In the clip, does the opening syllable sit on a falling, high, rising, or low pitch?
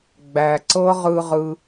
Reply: low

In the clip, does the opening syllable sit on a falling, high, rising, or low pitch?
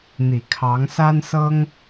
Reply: low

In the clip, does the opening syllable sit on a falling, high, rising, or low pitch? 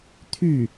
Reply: falling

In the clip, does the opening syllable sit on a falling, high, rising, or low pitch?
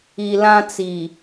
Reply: low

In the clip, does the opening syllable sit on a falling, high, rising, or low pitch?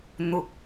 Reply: low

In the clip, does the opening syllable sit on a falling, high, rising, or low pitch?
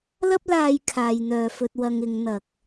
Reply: high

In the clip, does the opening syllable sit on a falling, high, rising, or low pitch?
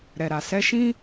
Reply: low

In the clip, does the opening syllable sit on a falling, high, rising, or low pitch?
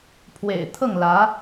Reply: low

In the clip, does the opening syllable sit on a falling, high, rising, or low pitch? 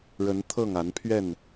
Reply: rising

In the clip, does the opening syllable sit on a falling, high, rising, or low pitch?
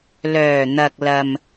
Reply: low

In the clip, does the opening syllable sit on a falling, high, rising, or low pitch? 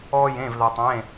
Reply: high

